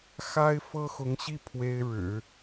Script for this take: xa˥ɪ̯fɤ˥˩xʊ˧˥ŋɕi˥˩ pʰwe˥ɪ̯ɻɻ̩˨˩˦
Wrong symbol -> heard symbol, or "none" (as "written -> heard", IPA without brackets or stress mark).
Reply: ɤ˥˩ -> ɤ˥